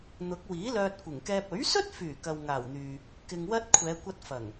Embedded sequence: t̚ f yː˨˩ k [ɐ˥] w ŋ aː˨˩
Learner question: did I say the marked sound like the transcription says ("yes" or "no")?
no